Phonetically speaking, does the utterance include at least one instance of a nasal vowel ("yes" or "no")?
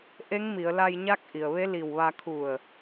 no